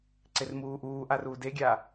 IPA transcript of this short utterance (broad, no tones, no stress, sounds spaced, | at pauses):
ǀ e r m uː ʔ uː ʔ a r uː d e ɡʲ aː